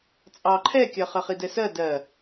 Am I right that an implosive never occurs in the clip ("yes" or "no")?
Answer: yes